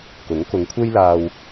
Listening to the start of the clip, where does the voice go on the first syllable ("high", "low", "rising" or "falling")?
rising